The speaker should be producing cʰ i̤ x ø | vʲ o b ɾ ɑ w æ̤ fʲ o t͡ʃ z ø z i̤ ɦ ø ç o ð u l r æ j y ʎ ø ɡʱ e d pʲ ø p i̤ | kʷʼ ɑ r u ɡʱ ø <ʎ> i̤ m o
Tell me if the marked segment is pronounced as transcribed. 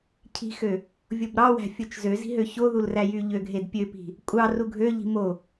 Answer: yes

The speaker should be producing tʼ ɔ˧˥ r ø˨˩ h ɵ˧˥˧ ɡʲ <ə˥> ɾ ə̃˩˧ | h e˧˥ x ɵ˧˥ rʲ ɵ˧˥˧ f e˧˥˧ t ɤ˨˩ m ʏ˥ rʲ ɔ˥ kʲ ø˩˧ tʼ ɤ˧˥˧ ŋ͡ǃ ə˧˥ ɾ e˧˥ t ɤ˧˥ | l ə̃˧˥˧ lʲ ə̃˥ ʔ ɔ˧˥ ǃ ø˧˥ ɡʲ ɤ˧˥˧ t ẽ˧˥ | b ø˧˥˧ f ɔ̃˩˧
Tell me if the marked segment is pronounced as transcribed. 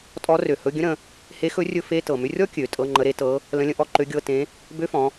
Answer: no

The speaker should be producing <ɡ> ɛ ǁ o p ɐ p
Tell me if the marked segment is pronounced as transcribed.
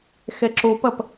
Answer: no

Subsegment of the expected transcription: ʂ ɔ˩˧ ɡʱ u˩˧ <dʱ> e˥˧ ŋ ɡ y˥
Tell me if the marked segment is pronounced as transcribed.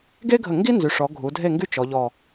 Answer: yes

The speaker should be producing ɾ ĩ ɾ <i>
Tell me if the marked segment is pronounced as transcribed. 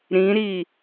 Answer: yes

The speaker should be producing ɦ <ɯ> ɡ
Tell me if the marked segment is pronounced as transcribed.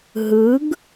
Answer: yes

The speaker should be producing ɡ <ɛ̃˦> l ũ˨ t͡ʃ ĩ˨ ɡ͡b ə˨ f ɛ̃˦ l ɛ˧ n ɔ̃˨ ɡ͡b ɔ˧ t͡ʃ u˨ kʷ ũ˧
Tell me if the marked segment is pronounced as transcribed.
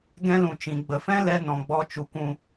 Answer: yes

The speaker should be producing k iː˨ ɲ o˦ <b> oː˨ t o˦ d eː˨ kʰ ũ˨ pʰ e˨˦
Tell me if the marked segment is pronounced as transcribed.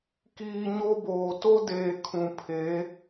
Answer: yes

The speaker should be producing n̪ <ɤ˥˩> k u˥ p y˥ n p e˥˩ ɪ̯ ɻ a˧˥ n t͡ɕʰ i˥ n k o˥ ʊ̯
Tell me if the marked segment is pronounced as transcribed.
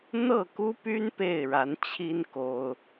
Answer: yes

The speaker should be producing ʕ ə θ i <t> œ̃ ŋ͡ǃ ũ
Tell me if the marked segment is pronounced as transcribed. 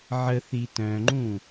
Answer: yes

